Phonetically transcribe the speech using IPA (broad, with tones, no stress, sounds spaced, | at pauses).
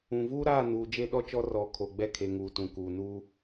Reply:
ũ˨ v uː˦ ɾ aː˦˨ n uː˨ d͡ʒ e˦ ɗ ɔ˦ t͡ʃ ɔ˦ r ɔ˨ kʰ o˨ ɡ͡b ɛ˦ kʰ e˨ ŋ uː˨ t ũ˨ k uː˨ n uː˦